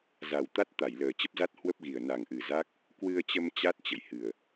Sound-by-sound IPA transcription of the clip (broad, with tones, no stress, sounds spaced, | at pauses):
z a˨˩ w t̪ a˦˥ t̚ t̪ a˧˩ j l əː˨˩ t͡ɕ ə˦˥ p̚ z a˦˥ t̚ h w ə˦˥ p̚ ɣ i˨˩ ə̯ n a˨˩ ŋ ʔ ɨ˨˩ z a˦˥ k̚ | k w ɨ˧ ə̯ t͡ɕ ə˧ m t͡ɕ a˦˥ t̚ t͡ɕ ə̰˧˨ j h ɨ˨˩ ə̯